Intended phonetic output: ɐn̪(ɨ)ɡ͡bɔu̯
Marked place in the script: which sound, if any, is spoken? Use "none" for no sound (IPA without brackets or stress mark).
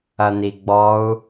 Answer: i